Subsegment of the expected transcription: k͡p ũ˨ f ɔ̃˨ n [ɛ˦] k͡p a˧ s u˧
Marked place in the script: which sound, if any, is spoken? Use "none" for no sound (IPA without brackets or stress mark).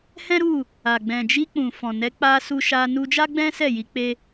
ɛ˨˦